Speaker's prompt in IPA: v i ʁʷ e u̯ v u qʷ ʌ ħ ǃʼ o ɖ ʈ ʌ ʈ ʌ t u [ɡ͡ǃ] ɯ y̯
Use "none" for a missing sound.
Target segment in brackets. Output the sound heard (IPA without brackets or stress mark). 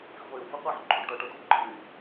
ɡ͡ǃ